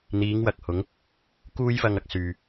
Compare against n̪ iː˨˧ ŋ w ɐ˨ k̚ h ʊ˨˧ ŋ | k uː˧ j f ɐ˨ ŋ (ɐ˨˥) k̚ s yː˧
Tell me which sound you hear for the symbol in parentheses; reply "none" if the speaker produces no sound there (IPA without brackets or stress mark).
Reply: ɐ˨